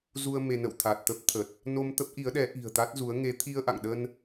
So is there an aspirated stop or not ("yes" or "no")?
yes